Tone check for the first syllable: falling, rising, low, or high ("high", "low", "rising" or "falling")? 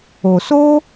low